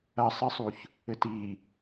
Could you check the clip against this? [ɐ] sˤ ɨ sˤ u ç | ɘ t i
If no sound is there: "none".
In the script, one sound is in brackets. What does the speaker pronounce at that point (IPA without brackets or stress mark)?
ɐ